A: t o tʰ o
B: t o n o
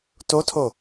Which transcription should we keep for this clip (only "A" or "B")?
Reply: A